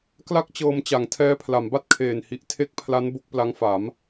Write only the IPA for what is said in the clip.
k l a˥˩ k̚ t͡ɕ ɤː˧ m t͡ɕ a˩˦ ŋ tʰ ɛː˦˥ pʰ l a˩˦ m b a˥˩ t̚ kʰ eː˨˩ n h i˨˩ ʔ tʰ e˦˥ k̚ pʰ l a˦˥ n b o˦˥ k̚ p l a˦˥ ŋ f a˩˦ m

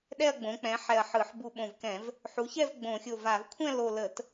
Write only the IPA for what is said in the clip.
ɗ ɛ˥˧ ɐ̯ ɡ͡b õ˩˥ k͡p ɛ̃˩˥ ħ ɛ˧˩ ɐ̯ ħ ɯ˧˩˧ ħ b u˧˩ ɓ õ˧˩ v k ɛ̃˧˩˧ v | ħ u˩˥ ç ɛ˥˧ v ɡ͡b õ˧˩˧ xʲ o˧˩ v a˧˩˧ v kʷʰ ɛ̃˥˧ l o˧˩ l ə˧˩˧ t

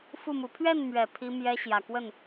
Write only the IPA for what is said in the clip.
f u˥˩ m u˧˥ pʰ ɥ ɛ˥˩ n m ɥ ɛ˨˩ pʰ i˥ m j ɛ˥ ɕ j ä˨˩ k w ə˥˩ n

